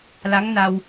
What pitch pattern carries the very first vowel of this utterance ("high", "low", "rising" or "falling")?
rising